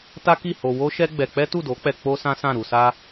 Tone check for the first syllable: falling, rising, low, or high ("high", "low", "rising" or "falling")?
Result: high